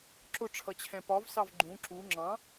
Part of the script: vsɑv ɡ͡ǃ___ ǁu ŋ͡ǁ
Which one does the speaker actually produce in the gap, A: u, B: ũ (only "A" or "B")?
B